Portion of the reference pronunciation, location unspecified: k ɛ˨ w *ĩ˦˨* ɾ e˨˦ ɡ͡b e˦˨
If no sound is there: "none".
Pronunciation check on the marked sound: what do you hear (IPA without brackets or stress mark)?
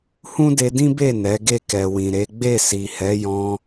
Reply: ĩ˨